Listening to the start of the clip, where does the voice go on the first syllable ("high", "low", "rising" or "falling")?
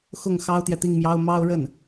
falling